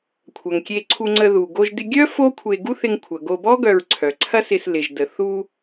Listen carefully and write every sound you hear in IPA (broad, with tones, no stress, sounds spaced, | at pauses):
kʷʰ ɐ˩ ŋ kʲ e˧ ǀʰ u˧ ŋ͡ǀ ə˧ ð u˩ ɡ o˧ ʒ d ɪ˧ ɡʲ œ˥ f o˥ kʷʰ e˧ ɡ u˥ θ ɪ˧ ŋ kʷʰ ɐ˩ ɡ o˧ b ɔ˥ ɡ œ˧ ɹ ǀʰ œ˩ ǀʰ ɐ˥ s ɪ˧ s l ɪ˩ ʒ d ə˩ θ u˧